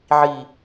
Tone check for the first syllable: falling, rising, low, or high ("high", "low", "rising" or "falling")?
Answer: low